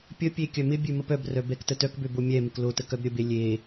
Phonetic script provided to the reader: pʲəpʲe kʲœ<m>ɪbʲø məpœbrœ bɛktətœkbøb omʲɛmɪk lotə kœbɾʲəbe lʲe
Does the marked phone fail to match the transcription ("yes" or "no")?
no